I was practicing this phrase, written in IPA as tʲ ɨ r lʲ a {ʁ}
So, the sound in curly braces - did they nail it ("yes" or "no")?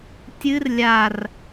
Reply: no